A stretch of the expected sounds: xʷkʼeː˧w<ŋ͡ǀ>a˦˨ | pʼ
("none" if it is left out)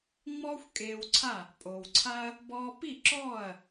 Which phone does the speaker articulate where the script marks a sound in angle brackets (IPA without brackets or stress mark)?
ǀʰ